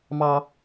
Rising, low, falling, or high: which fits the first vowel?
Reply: high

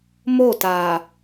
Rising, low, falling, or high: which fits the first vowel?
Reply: falling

